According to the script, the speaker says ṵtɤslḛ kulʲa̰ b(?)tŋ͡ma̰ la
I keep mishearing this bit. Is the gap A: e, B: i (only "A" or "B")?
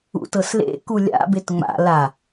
A